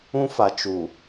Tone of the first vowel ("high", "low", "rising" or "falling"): high